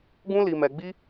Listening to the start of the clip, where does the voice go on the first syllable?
high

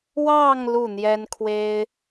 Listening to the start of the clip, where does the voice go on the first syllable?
falling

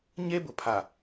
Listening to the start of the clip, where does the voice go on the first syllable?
high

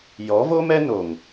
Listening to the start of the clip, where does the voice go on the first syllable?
rising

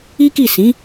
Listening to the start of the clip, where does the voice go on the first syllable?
high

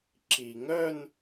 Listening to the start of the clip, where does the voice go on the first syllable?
low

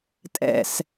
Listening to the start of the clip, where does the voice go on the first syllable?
low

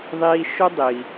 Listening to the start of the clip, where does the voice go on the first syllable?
high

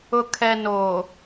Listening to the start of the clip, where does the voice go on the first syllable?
low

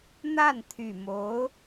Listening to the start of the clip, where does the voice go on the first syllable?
falling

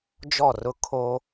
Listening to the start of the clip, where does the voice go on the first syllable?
falling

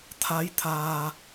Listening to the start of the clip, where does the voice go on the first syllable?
rising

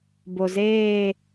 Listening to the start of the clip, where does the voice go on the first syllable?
low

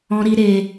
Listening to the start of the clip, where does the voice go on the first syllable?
high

